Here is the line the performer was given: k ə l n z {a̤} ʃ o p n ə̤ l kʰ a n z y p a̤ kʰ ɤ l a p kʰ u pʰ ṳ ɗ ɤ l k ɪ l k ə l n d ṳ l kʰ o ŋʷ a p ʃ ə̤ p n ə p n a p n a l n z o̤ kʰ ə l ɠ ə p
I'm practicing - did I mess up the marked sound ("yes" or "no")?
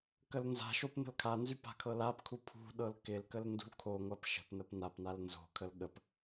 no